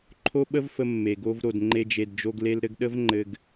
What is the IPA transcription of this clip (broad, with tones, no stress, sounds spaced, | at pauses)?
ǃʰ o˦ ɓ ə˦ v f ə˧ mː e˨ ɡ o˦ v ɾ o˨ d ŋ͡ǃ e˧ d͡ʒ e˨ d d͡ʒ o˧ ɡ l e˧ l ɾ ɘ˧ ɡ ɗ ə˦ v ŋ͡ǃ ɘ˧ ɡ